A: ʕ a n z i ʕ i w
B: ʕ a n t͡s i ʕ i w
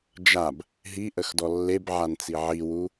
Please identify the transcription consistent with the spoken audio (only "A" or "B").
B